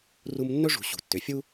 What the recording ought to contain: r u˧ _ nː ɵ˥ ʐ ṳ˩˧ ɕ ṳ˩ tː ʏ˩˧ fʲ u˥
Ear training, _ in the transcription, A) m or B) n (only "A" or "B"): A